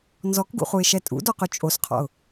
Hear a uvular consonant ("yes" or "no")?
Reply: yes